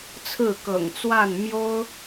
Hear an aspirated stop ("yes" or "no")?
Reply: yes